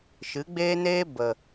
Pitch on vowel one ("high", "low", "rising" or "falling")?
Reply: rising